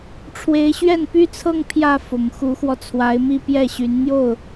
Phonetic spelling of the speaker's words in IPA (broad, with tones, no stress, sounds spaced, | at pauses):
ʈ͡ʂʰ w e˧˥ ɪ̯ ɕ ɥ ɛ˥˩ n p y˥ t͡sʰ ɤ˥˧ ŋ pʰ j ä˥˩ f ʊ˨˩ ŋ x u˧˥ x w ɔ˧ t͡sʰ w a˧˥ ɪ̯ m i˥˧ p j ɛ˥˩ ɕ y˧˥ n n̪ j o˥˩ ʊ̯